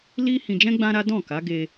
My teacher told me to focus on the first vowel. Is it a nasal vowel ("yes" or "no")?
no